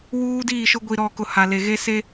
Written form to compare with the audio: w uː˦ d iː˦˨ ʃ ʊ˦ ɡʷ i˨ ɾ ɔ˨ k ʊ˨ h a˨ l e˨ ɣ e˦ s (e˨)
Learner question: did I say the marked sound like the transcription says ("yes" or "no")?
no